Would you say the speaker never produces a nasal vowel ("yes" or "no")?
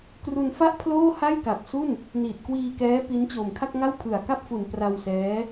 yes